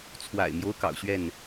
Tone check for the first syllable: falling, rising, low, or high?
low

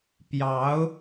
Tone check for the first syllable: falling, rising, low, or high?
rising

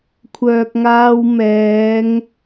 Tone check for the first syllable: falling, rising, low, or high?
low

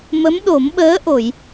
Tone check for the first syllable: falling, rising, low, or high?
rising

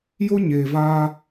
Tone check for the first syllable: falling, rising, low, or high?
high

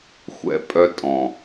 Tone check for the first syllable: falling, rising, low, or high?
high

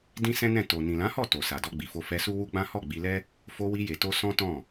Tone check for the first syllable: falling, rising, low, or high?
high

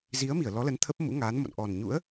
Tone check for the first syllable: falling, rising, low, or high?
rising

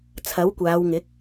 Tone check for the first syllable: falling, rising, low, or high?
rising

